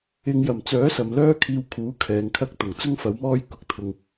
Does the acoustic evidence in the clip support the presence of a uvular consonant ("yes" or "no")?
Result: no